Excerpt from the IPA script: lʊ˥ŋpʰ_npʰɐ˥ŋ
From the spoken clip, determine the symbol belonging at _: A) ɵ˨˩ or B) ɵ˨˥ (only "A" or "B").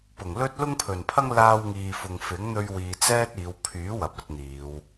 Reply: A